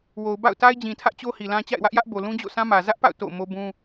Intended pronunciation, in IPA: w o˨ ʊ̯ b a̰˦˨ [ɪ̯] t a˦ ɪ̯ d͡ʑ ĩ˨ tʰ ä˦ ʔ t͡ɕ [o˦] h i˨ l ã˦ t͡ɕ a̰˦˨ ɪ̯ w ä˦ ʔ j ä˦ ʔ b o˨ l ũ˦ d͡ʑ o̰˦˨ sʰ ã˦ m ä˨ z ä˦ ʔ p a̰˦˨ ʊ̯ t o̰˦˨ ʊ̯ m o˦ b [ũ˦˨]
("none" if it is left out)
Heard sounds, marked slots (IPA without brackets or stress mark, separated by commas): ʊ̯, o˦, ũ˦